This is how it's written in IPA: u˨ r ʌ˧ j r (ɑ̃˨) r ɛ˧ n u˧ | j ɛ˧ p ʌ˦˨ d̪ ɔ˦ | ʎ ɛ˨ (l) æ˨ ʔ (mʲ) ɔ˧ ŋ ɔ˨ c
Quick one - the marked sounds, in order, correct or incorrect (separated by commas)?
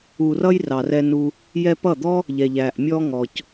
incorrect, incorrect, correct